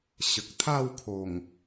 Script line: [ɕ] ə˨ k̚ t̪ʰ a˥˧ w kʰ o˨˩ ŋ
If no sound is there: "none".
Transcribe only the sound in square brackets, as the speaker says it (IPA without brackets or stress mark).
ɕ